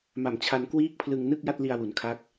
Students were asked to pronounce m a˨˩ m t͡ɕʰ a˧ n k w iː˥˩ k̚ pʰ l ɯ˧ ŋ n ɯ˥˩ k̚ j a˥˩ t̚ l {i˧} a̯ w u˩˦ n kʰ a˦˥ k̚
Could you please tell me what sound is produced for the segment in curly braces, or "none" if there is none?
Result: i˧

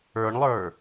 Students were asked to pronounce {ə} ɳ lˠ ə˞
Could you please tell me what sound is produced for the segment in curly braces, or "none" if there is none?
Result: ə˞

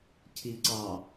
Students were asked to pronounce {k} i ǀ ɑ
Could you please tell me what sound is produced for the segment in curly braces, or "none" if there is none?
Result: cʰ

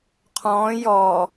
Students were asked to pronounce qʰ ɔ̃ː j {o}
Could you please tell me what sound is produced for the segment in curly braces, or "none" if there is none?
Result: ɔ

